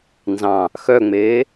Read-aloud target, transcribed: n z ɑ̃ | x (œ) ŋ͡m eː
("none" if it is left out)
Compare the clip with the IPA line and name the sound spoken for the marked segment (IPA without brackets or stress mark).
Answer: œ